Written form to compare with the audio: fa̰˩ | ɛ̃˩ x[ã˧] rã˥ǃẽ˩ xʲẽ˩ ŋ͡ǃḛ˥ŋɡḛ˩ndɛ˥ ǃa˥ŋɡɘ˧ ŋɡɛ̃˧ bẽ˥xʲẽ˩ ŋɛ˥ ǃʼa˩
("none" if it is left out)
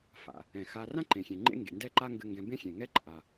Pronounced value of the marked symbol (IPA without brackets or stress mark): a˧